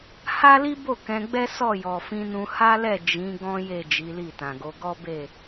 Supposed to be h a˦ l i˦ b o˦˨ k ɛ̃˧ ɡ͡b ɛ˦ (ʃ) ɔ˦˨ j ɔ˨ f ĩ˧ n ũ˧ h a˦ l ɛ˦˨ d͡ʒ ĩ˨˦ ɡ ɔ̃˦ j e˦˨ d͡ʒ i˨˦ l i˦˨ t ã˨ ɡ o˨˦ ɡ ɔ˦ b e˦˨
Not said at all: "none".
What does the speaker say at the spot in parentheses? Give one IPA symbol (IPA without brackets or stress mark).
s